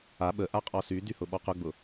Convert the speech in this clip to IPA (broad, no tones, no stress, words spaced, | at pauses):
a ɓə ʔaqʼɔsydy hʊɓɔqʊɡ͡bʊ